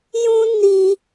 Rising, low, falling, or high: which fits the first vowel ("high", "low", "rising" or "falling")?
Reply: high